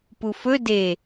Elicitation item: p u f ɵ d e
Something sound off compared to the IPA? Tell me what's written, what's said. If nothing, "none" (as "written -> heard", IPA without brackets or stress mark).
none